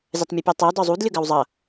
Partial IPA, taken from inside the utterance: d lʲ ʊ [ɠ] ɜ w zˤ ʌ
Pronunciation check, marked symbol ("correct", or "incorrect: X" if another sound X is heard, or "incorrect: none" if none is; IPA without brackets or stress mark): incorrect: ɡ